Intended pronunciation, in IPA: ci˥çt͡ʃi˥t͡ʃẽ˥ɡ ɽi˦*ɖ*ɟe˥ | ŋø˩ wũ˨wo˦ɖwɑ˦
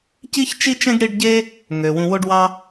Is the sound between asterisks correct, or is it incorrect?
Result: correct